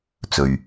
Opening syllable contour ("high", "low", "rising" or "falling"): low